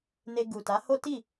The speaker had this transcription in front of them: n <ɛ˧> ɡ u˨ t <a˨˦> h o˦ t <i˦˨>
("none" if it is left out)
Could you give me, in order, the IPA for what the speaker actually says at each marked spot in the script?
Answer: e˧, a˨˦, i˦˨

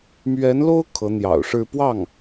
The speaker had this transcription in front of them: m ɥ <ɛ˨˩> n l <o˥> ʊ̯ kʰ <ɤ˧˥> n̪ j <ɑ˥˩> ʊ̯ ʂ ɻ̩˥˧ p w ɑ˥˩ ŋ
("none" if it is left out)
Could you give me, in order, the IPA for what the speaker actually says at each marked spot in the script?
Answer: ɛ˧˥, o˥, ɤ˧˥, ɑ̰˨˩

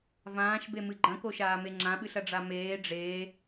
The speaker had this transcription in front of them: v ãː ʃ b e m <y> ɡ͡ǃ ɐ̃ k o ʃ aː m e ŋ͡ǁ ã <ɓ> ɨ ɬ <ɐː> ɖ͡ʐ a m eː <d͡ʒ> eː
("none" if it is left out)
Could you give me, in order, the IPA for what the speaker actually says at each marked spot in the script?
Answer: ɨ, ɓ, ɐ, ɖ͡ʐ

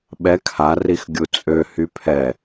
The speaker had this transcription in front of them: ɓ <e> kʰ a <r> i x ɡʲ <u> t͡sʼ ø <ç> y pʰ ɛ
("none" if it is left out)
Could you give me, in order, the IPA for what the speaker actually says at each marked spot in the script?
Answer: ɛ, r, u, h

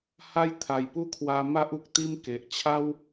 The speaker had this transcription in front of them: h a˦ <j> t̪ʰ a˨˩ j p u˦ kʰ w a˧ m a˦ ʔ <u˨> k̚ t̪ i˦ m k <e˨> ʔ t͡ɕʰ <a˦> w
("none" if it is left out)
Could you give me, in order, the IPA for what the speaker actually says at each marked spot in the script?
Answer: j, u˨, e˨, a˦

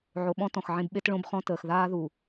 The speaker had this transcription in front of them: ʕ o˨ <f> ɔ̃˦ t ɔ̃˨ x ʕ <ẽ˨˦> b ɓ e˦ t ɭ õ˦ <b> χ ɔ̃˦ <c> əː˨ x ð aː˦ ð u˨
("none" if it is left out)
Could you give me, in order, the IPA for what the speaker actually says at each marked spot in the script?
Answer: ɓ, ẽ˦, b, t

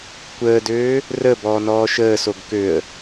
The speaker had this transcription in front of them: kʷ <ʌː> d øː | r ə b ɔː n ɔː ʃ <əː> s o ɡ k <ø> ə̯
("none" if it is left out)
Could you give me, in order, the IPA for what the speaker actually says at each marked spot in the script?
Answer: əː, əː, ø

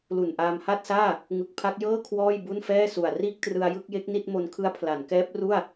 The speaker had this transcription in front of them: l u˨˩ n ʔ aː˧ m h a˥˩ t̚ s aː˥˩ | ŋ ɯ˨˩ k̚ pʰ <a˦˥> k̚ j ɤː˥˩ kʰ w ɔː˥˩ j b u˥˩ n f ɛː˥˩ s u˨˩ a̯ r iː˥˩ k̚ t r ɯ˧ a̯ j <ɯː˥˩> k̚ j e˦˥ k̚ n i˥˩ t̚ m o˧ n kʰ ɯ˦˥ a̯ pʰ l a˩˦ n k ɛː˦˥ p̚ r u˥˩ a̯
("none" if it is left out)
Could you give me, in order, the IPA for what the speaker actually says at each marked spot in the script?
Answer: a˦˥, ɯ˥˩

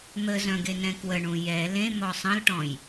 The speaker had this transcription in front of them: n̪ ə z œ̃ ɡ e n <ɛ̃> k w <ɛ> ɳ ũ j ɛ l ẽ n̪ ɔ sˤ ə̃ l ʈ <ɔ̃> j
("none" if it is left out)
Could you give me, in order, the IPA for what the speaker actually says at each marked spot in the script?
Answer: ɛ̃, ə, ɔ̃

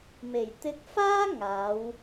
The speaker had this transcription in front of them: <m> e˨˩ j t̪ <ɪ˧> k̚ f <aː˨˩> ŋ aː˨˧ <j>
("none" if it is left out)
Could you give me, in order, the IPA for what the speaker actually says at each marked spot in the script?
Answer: m, ɪ˧, aː˥, w

